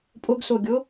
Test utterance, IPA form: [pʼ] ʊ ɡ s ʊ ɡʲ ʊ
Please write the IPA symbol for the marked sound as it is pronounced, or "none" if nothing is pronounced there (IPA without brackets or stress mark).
pʼ